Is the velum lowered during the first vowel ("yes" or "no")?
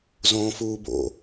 yes